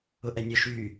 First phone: ʊ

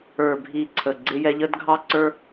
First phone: ə˞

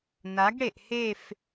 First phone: n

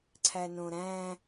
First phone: ǀʰ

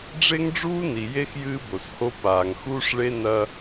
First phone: ɖ͡ʐ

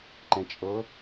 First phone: ǃ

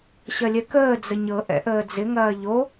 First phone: ɕ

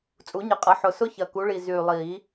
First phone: t͡sʼ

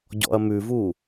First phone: ɟ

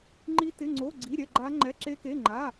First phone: ŋ͡ǃ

